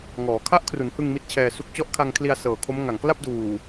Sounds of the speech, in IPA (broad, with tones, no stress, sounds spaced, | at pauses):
ŋ ɔː˩˦ kʰ a˦˥ ʔ kʰ r u˩˦ n h ɯ˧ ŋ m i˦˥ t̚ t͡ɕʰ ɛː˧ s u˦˥ k̚ t͡ɕ ɔ˦˥ ʔ kʰ a˧ ŋ kʰ l i˧ a̯ s ɤː˨˩ kʰ o˦˥ m ŋ a˨˩ ŋ k l a˥˩ p̚ d uː˨˩